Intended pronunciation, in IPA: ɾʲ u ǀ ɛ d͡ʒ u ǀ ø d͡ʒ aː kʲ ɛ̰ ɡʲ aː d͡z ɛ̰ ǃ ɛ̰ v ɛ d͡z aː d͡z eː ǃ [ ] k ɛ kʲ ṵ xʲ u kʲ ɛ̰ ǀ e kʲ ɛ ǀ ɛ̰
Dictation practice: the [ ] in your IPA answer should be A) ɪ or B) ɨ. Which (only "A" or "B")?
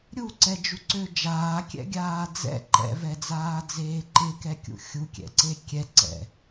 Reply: A